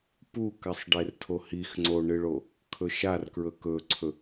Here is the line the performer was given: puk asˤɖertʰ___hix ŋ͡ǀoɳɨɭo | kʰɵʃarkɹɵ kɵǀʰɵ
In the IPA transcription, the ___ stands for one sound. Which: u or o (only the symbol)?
o